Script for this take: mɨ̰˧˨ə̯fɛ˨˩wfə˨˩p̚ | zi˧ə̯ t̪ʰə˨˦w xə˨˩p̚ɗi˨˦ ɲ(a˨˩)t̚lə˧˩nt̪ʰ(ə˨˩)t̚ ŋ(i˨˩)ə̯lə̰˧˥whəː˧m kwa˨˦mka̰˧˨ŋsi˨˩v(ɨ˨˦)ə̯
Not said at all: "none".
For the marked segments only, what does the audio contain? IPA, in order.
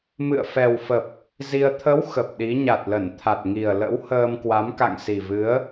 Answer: a˨˩, a˨˩, i˨˩, ɨ˨˦

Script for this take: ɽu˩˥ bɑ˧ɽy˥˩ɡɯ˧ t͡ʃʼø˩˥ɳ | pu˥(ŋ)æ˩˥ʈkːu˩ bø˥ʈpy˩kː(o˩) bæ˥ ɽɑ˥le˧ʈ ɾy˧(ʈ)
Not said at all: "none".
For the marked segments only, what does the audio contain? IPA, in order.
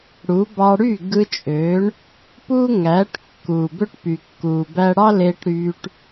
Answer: ŋ, u˩, ʈ

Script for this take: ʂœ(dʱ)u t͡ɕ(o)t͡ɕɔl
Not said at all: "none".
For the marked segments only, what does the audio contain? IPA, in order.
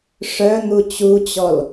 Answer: n̪, u

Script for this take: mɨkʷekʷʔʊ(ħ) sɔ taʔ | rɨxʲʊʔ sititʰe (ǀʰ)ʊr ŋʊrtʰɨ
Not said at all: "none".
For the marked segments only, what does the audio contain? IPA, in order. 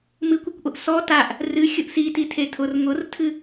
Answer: ʔ, tʰ

